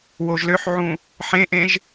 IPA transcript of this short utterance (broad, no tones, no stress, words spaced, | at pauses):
woʒløħʕũ | ħẽʔẽʒ